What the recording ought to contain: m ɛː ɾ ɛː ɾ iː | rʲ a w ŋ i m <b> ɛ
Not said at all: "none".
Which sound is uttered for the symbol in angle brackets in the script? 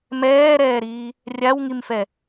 f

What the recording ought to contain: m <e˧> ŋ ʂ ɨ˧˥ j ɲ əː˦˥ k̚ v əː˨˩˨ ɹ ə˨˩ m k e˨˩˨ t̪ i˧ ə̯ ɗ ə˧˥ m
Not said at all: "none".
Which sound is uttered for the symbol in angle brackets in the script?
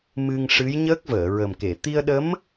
ɨ˧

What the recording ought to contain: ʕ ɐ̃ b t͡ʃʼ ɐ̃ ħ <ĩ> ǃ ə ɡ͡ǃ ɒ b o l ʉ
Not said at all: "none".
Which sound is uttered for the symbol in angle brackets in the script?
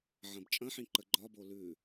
ĩ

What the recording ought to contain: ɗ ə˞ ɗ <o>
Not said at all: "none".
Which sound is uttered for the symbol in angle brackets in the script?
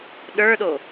o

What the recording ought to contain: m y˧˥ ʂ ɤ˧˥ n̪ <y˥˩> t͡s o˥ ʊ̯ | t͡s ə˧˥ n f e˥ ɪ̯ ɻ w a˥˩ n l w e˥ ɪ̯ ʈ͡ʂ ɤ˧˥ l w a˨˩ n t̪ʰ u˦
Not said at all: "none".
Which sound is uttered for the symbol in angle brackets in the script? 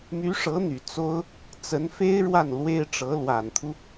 y˨˩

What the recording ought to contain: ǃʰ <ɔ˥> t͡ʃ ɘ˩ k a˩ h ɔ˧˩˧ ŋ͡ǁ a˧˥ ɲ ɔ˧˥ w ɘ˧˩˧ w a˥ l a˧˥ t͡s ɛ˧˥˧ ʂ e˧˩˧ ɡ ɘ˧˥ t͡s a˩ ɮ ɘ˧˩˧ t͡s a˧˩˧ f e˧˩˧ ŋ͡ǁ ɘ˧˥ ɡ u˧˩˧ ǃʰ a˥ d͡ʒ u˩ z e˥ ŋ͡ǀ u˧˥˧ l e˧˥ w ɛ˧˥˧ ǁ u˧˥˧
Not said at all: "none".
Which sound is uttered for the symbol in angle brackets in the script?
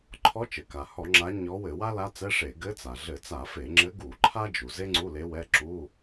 ɔ˧˥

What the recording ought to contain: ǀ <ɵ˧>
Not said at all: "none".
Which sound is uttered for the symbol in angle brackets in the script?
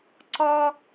ɔ˧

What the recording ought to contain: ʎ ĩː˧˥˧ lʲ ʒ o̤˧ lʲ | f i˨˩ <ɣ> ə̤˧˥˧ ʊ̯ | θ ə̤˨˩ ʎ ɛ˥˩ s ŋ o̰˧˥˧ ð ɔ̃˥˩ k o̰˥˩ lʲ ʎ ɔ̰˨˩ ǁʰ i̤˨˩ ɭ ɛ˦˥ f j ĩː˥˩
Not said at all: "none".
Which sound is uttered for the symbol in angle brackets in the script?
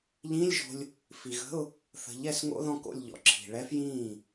ɣ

